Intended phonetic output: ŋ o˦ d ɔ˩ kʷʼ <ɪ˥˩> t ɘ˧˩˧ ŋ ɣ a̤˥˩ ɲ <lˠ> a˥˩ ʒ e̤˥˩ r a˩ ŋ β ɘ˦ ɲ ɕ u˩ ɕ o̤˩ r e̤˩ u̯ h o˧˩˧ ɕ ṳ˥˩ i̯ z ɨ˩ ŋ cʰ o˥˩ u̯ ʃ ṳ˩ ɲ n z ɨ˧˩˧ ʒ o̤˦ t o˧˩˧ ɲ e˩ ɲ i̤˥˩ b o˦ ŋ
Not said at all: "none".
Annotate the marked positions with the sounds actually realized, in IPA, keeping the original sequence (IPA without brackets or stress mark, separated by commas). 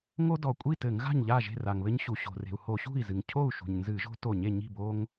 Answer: i˥˩, ʎ